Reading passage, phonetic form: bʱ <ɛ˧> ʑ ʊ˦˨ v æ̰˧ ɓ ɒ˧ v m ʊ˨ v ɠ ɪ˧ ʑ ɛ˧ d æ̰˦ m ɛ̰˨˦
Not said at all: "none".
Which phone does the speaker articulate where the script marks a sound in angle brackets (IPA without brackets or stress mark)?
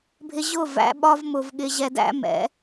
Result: ɪ˧